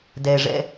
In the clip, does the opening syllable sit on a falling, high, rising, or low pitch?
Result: low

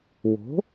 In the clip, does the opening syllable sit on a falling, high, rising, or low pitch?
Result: rising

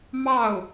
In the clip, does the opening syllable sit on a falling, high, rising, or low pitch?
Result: falling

